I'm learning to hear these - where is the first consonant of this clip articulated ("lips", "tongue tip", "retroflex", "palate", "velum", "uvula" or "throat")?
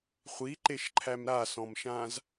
uvula